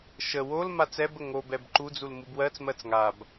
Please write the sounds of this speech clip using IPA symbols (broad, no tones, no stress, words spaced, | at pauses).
ʃə wol mat͡sɛbə ŋobɛb ǃud͡zul mubwɜt͡smɜt͡s ŋab